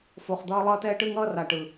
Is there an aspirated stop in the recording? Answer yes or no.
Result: no